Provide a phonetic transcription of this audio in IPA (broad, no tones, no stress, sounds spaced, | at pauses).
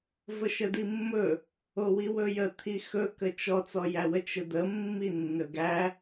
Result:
v ə ʃ ə d̪ i mː ɵ | o w i w ɵ j ə t̪ʰ i x ɵ k ə t͡ʃ ɔ t͡s ɔ j æ w ə t͡ʃ ə d̪ ə mː i nː ɵ ɡ æ